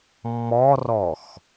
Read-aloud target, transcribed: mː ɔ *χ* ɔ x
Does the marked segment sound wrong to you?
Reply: yes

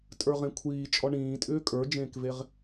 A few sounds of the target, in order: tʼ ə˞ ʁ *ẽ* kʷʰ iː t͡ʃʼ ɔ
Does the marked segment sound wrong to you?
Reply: no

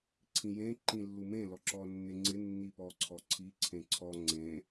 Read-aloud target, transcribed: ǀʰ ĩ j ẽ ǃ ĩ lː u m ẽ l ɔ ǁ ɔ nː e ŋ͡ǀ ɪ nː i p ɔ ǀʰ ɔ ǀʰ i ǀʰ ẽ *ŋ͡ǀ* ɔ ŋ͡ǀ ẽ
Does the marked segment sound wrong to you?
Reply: yes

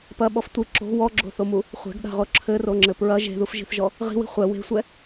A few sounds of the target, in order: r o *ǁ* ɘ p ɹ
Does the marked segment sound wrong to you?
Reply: yes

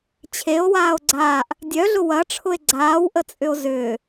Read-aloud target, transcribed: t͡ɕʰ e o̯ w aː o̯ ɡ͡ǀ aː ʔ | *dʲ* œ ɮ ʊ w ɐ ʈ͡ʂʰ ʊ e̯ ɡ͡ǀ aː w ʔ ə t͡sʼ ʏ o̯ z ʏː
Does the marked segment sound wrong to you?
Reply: no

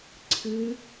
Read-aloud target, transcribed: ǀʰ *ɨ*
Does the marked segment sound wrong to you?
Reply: no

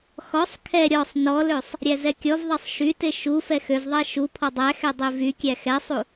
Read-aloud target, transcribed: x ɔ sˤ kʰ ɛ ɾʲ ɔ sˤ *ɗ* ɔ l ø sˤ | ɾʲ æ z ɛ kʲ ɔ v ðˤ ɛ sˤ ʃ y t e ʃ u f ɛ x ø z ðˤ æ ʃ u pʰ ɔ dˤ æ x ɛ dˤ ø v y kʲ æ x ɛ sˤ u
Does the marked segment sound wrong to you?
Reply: yes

